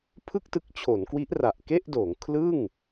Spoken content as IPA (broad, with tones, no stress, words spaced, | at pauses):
pʰɯ˥˩k̚tɯ˦˥k̚t͡ɕʰo˩˦nkwi˦˥ʔ ra˨˩ʔ ke˥˩ʔdoː˩˦ŋ kʰlɯ˥˩ŋ